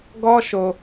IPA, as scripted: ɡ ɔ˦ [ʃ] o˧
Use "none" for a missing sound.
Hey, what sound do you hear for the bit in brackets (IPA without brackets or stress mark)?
ʃ